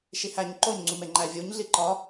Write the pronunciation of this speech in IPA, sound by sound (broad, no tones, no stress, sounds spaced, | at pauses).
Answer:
ʃ i h æ ɲ ǃ o ɲ ŋ͡ǀ u m e ŋ͡ǃ æ vʲ u ɲ ɮ i ǃ ɒ